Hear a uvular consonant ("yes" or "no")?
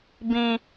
no